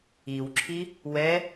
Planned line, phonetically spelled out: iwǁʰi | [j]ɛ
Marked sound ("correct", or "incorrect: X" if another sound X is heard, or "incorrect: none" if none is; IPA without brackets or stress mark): incorrect: w